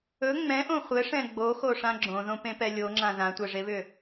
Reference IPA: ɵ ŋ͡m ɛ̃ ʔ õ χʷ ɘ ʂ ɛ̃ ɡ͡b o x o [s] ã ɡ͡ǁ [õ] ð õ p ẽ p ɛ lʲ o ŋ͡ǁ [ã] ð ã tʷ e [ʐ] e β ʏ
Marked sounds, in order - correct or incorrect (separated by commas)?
incorrect, correct, correct, correct